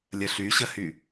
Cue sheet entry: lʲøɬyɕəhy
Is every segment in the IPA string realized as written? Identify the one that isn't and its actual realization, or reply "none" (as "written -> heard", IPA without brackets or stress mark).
ø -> ə